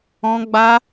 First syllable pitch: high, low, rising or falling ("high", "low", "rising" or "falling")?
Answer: high